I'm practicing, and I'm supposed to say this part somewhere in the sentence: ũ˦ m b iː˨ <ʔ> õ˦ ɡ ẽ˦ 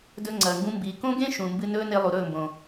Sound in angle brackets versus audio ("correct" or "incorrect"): incorrect